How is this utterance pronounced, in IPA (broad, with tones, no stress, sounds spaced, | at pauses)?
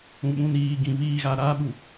ũ˨ ɓ ũ˨ n iː˨ ɡ ĩ˨ v iː˨ ɣ a˨ ɾ aː˦ ɓ u˨